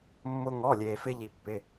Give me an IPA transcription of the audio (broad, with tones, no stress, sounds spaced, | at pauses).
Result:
mː ʊ˥ ŋ ɔ˧˥˧ lʲ eː˧ f ɪ˥ ʎ i˧ pː ɪ˧˥˧